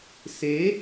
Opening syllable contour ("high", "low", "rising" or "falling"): rising